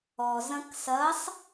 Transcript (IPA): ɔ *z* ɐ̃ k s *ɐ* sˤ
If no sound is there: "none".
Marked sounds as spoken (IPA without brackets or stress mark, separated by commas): z, ɐ